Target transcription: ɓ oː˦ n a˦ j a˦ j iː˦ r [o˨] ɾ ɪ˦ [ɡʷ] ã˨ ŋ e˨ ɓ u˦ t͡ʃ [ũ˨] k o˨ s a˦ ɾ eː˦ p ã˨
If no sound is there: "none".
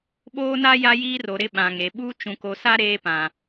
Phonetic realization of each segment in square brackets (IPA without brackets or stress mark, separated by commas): o˨, ɓ, ũ˨